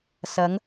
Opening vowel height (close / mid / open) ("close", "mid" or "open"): open